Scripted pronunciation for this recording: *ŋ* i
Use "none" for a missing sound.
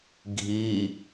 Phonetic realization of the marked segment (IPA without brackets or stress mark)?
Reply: ɡʱ